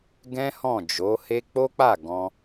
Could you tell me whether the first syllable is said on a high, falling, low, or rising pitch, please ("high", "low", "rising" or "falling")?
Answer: high